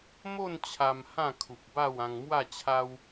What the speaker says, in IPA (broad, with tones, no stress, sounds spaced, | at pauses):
m o˥˧ n t͡ɕʰ a˧ m h ã˥˧ kʰ u˨ p̚ b a˥˧ w ã˧ ŋ m w a˥˧ t͡ɕʰ a˦ w